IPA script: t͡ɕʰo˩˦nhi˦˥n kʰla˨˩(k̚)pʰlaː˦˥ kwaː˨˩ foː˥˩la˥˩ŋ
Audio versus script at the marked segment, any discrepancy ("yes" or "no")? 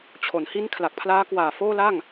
no